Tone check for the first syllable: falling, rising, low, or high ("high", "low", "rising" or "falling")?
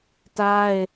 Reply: high